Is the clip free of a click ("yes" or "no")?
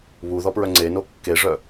no